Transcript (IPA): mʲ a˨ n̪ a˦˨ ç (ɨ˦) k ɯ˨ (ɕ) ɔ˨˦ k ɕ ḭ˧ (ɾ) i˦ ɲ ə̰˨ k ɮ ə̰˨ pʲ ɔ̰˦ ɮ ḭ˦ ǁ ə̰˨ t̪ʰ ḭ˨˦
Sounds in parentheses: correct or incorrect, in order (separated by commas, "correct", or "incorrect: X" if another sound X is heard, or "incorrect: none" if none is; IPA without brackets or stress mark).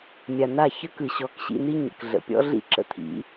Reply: incorrect: ə˦, correct, incorrect: n̪